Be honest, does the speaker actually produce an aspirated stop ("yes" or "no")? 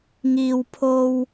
yes